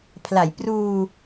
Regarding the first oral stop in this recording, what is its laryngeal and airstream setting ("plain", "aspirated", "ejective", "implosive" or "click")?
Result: aspirated